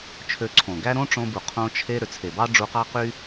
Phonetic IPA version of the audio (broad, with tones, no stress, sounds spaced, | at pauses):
t͡ʃʰ ø˧ ǀʰ õ˨ ɡ æ˦ ɾ õ˦ ʈ͡ʂ õ˧ b u˨ qʰ õ˧ t͡ʃʰ e˧ ɾ ø˨ t͡sʰ e˨ b ɑ˦ ɖ͡ʐ u˧ q ɑ˦ q y˦